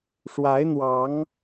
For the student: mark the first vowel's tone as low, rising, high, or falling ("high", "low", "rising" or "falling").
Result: rising